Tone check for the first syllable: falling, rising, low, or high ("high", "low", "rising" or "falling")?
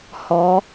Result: rising